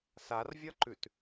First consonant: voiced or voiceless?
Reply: voiceless